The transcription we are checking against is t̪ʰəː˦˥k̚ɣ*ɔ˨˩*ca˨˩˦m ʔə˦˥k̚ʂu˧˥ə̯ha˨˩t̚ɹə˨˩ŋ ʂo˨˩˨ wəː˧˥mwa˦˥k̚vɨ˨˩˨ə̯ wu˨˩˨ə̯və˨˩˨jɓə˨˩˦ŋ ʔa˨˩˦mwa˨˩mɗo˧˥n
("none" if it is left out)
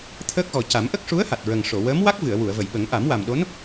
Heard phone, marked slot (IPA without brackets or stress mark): ɔ˨˩